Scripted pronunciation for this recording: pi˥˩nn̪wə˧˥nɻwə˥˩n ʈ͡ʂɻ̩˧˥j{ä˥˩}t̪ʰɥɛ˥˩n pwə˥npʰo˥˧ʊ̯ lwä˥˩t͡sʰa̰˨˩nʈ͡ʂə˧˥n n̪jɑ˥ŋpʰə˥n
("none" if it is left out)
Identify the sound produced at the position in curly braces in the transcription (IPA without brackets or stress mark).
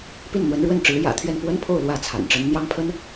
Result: ä̰˨˩